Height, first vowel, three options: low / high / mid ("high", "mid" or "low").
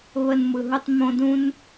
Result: mid